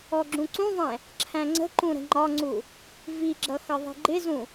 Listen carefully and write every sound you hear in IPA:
ɔɡ͡ǁũǀũðˤɛ̃ | ǁʰæ̃ŋ͡ǀə̤ǃũ ɾə̤ŋ͡ǃɒŋ͡ǀu | viɡ͡ǁʌ xʌðˤi̤ɡ͡ǃɪzũ

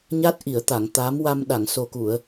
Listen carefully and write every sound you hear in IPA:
ɲa˦˥t̚ ʔi˨˩˨ə̯t̪a˨˩˨ŋ t̪a˧˥m wa˧m ɗa˨˩˨ŋso˨˩ku˨˩˨ə̯

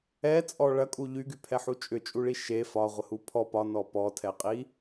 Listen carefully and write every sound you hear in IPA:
ɛt͡sʼɔ ɭɐkʼu ʎyɡypʰɛħu t͡ʃʼʏt͡ʃʼuɭi ʃe fɒʁʷəhu pʰɔ pɒnɔ pɔtʰɛqʼi

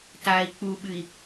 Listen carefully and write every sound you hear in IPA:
tai̯ k͡puɓɨi̯

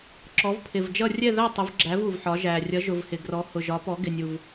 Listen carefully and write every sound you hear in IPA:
ǁɔ˩˥vpʰɪ˨˩vd͡ʒʌ˥˨ rʲɛ˥˨ðæ˥˨tˤʊ˩˥vɡ͡ǁæ˩˥v u˨˩vħɒ˩˥ʒæ˨˩ rʲʌ˩˥ʒʊ˨˩v hɪ˨˩ɡrɔ˩˥ hʊ˨˩ ʒɒ˩˥pɔ˩˥ɡɪ˨˩nʲu˨˩v

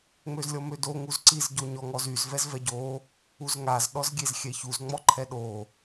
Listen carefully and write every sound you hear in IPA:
ŋ͡møzlʲɔmødo ŋuzǀiz ɟoɲɔŋɔzyz vɛzvɛɟo | uzŋaz ɗɔzɡʲezxʲɛçuz ŋ͡mɔǃʰɛɗo

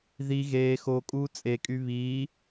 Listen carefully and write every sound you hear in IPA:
ði ɣeː xo kʼuːt͡sʼekʼy βiː

